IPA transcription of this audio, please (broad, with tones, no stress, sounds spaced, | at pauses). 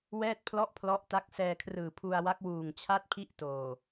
w ɛː˥˩ t̚ pʰ l ɔ˥˩ ʔ pʰ l ɔ˦˥ ʔ t a˦˥ k̚ s ɛː˧ kʰ r ɯː˨˩ pʰ u˧ a̯ w a˦˥ k̚ w uː˨˩ ŋ t͡ɕʰ a˥˩ t̚ pʰ i˥˩ ʔ t oː˨˩